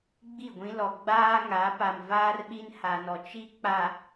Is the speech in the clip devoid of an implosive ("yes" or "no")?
no